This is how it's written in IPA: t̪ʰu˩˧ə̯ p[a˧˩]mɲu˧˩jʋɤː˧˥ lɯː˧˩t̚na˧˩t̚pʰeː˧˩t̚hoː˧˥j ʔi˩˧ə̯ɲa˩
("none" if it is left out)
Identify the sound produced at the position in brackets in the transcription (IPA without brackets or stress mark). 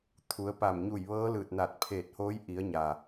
a˧˩